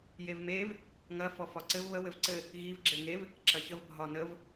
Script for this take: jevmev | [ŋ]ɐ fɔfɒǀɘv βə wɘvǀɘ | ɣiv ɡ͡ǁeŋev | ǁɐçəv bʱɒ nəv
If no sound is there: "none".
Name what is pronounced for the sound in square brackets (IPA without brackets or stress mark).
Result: ŋ